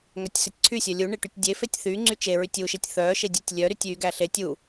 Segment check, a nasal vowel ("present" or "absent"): absent